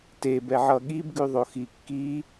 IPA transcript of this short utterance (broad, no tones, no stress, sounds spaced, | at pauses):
t e b ɛ ʕ ʌ ɠ i b ɡ ʉ ðˤ o x i kː i